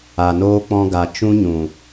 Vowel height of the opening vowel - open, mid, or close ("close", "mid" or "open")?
open